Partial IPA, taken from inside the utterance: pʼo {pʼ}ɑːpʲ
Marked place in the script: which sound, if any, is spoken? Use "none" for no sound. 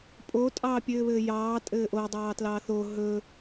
tʼ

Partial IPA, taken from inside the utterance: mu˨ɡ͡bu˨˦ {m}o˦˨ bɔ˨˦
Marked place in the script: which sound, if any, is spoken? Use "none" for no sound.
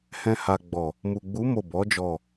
m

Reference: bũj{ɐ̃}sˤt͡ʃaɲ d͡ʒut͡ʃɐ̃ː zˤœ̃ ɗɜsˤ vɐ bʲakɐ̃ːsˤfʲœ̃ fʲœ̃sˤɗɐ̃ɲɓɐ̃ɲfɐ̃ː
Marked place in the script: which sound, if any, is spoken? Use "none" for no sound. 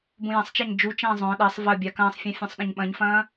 ɐ̃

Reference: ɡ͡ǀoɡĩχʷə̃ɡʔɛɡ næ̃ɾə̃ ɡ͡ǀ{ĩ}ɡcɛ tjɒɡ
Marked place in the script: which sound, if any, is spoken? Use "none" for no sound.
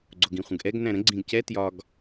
ĩ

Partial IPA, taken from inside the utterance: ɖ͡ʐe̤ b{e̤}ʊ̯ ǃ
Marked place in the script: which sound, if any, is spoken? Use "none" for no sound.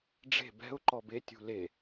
ɛ̤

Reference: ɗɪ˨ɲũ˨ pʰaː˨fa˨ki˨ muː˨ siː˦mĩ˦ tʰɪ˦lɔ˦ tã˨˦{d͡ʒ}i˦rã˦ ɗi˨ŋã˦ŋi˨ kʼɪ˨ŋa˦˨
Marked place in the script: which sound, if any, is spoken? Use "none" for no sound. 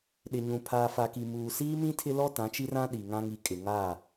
t͡ʃ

